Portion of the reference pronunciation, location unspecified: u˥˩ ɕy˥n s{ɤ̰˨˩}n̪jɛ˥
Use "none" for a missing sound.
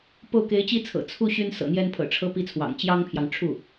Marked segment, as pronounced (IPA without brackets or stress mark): ɤ̰˨˩